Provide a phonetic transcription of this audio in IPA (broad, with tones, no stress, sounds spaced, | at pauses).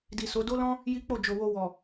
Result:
d i˨ s o˨˦ d o˦ l ɔ̃˦ | j i˦ k͡p o˦˨ d͡ʒ o˨ w o˧ w ɔ˨